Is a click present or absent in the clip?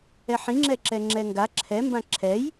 present